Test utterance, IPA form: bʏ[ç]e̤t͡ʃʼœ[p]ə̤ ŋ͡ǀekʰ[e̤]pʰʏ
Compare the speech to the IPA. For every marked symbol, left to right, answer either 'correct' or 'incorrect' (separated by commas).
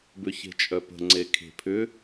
correct, correct, correct